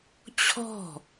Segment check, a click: absent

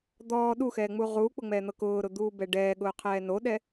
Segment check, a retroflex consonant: present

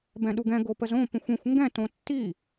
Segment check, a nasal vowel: present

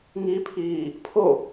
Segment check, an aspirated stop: present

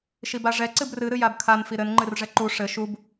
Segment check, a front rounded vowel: absent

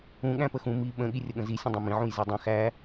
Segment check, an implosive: present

